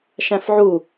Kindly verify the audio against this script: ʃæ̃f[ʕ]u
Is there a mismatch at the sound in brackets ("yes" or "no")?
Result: no